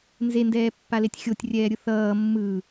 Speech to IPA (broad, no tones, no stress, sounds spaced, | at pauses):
n z e n d ɛː pː a l e tʲ xʲ o tʲ rʲ ɛː ɾʲ ɯ θ ʌː mː ɯ